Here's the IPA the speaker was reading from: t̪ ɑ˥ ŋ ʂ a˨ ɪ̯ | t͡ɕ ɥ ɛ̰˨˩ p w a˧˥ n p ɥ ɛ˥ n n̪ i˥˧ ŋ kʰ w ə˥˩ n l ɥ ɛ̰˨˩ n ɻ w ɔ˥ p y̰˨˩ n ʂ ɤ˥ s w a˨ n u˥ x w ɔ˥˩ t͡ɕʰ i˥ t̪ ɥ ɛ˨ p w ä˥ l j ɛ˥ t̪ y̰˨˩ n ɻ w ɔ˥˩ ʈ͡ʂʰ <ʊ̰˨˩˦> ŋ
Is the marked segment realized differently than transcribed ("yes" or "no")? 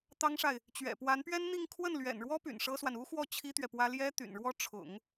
no